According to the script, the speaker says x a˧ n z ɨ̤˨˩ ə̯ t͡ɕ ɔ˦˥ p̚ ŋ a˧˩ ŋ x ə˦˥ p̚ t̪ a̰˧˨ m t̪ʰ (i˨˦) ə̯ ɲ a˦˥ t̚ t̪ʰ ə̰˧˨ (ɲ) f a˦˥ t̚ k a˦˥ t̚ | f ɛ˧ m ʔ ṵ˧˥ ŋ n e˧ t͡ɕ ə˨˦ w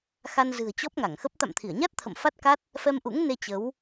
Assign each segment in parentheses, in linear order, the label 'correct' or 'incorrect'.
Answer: incorrect: i˧˩, incorrect: m

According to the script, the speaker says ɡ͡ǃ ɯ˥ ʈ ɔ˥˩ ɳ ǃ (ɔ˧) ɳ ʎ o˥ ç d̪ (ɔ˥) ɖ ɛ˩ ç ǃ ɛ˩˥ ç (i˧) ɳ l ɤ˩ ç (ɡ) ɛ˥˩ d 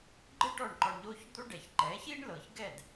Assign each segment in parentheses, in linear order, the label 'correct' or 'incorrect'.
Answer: correct, incorrect: o˥, incorrect: i˥, correct

